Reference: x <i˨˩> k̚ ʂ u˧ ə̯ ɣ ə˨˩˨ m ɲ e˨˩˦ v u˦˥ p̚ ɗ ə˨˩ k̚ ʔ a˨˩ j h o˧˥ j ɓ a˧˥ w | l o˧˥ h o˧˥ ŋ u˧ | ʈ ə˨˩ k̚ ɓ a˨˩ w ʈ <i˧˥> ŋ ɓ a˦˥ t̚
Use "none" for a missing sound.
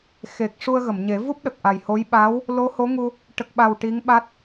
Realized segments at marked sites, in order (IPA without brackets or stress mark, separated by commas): e˨˩, i˧˥